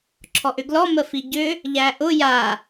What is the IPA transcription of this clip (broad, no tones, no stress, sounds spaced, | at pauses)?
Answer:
ǁʰ ɔ ʔ ʏ ɡ l ɔ m ə f i ɟ ʏ | ʎ æ ʔ ʊ j a